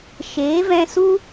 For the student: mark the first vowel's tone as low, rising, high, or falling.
rising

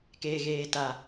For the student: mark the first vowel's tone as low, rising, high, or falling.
low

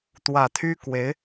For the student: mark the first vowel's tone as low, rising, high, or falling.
low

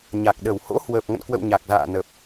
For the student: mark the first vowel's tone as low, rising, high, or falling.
low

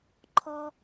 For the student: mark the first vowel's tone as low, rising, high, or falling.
high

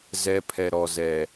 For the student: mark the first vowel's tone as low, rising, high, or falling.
high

